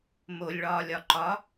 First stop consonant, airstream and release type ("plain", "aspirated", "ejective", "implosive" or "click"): click